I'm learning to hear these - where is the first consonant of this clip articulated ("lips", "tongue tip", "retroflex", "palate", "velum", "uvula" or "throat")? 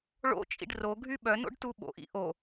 retroflex